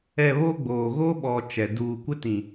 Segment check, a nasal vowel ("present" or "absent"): present